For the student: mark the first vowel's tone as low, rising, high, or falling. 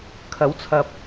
rising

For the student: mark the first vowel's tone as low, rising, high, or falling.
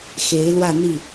rising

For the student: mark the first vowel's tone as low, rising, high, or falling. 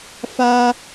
high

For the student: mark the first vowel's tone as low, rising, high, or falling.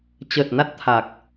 low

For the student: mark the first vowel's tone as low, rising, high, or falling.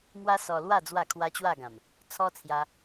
high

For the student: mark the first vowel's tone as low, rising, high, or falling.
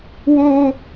high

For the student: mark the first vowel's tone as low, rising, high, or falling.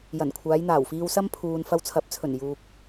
low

